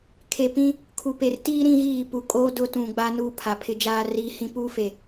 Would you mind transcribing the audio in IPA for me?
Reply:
kʰ e˨ p ĩ˦ | kʰ u˨ p e˨ r t iː˦ ɾ ĩ˦ ɣ iː˦˨ p u˨ kʼ oː˦ d ʊ˦ t ũ˨ ɡ͡b a˦ n uː˦ pʰ a˨ pʰ ɪ˦ d͡ʒ aː˦ r iː˦ h ĩ˦ p uː˦ f e˨

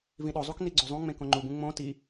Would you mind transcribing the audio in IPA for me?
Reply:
v ĩ ɗ o zˤ u k n i ɡ͡ǀ o zˤ ũ ŋ͡m ẽ k õ ŋ͡ǃ u b ũ ŋ͡m õ t i

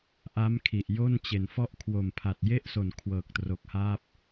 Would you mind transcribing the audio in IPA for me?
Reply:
ʔ a˦˥ m kʰ i˨˩ ʔ j o˥˩ n t͡ɕ e˨˩ n f ɔ˥˩ ʔ kʰ w o˨˩ m pʰ a˨˩ t̚ j e˥˩ ʔ s o˨˩ n kʰ w ɤː˨˩ k̚ t r o˨˩ k̚ h aː˥˩ p̚

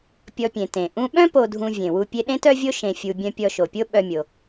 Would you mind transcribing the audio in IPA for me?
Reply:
pʲ ɔ˧ pʲ ẽ˩ t ẽ˩ ʔ ũ˧ ɓ œ̃˥ p o˧ dʱ ũ˧ vʲ ẽ˩ w u˧ pʲ e˧ ɗ ẽ˥ t œ˥ vʲ o˥ ʃ ẽ˧ fʲ u˧ bʲ œ̃˧ pʲ ɔ˧ ʃ o˩ pʲ o˥ ɓ œ˥ mʲ o˧

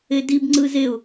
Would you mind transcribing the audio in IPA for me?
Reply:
e d i b ŋ͡ǀ ɯ z e ʊ̯

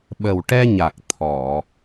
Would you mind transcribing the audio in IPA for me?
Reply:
ɓ ə˨˩ w ʈ ɛ˧ ɲ a˨˩ k̚ t̪ʰ ɔ˨˩˨

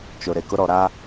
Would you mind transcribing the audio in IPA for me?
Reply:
t͡ʃ ʊ˨ ɾ e˨ k ʊ˦ ɾ ɔ˨ ɾ a˦

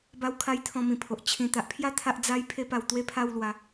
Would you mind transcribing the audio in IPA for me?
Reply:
b a˧ w kʰ a˧ j t̪ʰ ɔ̃˧ m ĩ˨˩ pʰ o˨ ʔ t͡ɕʰ ĩ˨˩ t̪ a˨ ʔ pʰ j a˦ t̪ʰ a˦ ʔ d͡z a˦ j pʰ e˦ p a˧ w t̪ w e˥˧ pʰ a˥˧ w l w a˨˦

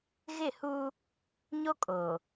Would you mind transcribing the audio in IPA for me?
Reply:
ɣ ɪ˦˨ h uː˦ | ɲ o˦ kʼ oː˨

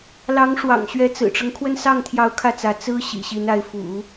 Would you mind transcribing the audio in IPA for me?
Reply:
l ɑ˧˥ ŋ ʂ w ɑ̰˨˩ ŋ ɕ ɥ ɛ˧˥ t͡s ɹ̩˨˩ ʈ͡ʂ ɤ˦ ŋ kʰ w ə˥˧ n s ɑ˥˩ ŋ t̪ʰ j ɑ˧˥ ʊ̯ kʰ ä˥˩ t͡s ä˧˥ t͡s ɹ̩˥ ɕ ḭ˨˩ ɕ i˧˥ n a˧˥ ɪ̯ f ṵ˨˩˦

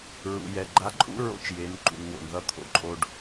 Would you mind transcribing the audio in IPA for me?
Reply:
ɹ ṵ˩ j ɛ˩ ɡ͡ǃ a˧˥ ǃʼ ṵ˥ ɹ o̰˧˥ t͡ʃ j e˩˧ n ǃ ṵ˩ n w o̰˩ n ð ʌ˧˥ t̪ʰ o̰˩˧ ǃʼ o˧ ɖ

